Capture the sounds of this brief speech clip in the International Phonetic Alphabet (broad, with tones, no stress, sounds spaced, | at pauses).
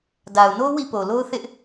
d a˨ ʊ̯ n o˦ w ḭ˦˨ p o˨ l o˦ ʊ̯ θ ɪ˦ ʔ